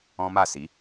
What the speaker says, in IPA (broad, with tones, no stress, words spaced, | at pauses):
ɔ̃˦ma˦˨si˨˦